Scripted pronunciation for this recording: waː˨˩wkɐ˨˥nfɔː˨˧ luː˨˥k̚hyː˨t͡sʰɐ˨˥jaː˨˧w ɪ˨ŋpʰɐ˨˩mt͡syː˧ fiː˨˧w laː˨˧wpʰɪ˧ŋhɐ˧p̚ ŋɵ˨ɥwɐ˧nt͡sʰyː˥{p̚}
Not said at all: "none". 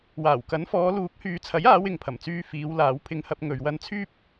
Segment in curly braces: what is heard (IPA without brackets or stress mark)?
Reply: p̚